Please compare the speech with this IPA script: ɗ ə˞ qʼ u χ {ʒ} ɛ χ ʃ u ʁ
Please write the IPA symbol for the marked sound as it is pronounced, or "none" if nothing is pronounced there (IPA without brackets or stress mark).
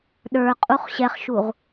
ɕ